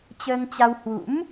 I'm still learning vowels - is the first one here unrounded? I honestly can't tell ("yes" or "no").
yes